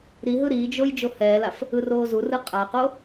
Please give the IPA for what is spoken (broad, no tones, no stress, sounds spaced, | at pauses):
ɾ i ɦ ɯ ɾ iː d͡ʒ o j d͡ʒ o h ɛː l a f | ɯ r oː z u r ɯ qʼ a q o